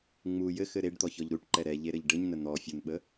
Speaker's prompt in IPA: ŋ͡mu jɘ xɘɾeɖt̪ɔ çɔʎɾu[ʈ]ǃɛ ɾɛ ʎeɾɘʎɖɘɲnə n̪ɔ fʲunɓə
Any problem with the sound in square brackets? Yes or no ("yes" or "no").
no